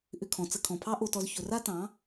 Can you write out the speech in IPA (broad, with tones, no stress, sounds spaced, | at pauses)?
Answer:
ʔ ʏ˧ kʰ ɔ̃˨ t͡s ə˧ kʰ ɔ̃˨ pʰ ɑ˦ ʔ o˧ t ɔ˧ z ç ɵ˨ r a˦ t ɑ̃˨˦